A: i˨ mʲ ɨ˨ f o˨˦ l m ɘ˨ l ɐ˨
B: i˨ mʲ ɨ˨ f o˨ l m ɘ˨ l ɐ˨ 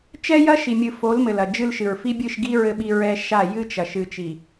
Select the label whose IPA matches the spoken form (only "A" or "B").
A